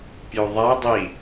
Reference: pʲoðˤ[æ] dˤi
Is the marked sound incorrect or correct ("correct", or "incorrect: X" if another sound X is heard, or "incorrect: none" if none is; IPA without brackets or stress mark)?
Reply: correct